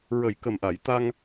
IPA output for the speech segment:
ɹə˨˩j kə˨˩mʔa˨˩˨j t̪a˧ŋ

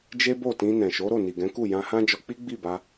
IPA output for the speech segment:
d͡ʒe˦bo˦˨tĩ˧ nɛ̃˨ʃo˨˦ɾo˦˨ ni˨ɡɛ̃˨˦ku˦˨ jã˧hã˦d͡ʒɔ˧k͡pi˦ ɡ͡bi˦˨ba˧

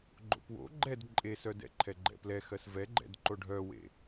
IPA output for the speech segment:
ɡ͡ǃo̰pwo̰ ɡ͡ǃɛd ǃʼesœdɛ̰ǃʰɛ ɡ͡ǃɛ̰plɛxɜs vɛɡ͡ǃɛ̰d ǃoɖʱœwḛ

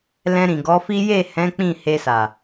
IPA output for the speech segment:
lɛ̃˧ɾĩ˨ɡɔ˨˦fi˦ je˦˨hɛ̃˨˦ k͡pĩ˦˨ he˧sa˨

